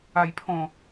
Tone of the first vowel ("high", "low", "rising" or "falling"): low